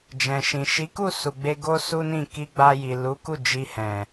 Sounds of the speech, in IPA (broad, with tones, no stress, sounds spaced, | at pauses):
d͡ʒ ɛ̃˨ ʃ ĩ˨ ʃ i˨˦ k u˦˨ s u˨ ɡ͡b e˧ ɡ o˦ s u˦ n ĩ˦˨ k i˧ ɡ͡b a˧ j i˨ l u˨˦ k u˦˨ d͡ʒ i˧ h ɛ̃˨